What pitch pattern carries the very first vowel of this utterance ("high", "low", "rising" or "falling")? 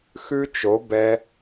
high